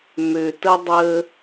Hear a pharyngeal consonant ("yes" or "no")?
no